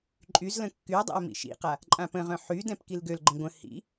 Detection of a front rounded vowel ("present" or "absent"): present